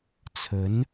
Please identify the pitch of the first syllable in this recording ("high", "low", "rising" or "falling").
rising